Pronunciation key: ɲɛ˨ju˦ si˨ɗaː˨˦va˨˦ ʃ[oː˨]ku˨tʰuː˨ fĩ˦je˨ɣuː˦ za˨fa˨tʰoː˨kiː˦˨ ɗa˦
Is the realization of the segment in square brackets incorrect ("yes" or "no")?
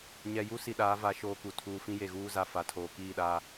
no